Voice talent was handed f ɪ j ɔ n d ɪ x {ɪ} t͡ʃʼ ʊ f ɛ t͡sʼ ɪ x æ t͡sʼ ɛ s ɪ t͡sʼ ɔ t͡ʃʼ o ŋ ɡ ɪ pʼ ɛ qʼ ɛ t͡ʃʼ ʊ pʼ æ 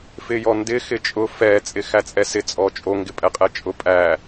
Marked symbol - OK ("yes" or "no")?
yes